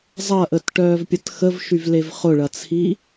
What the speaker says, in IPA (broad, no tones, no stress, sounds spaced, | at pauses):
zˤ ɐ ʔ ə t ʈ œː v pʲ ɐ t x ə v ʃ y v l e v χ ʊ ɭ ɐ t͡sʰ i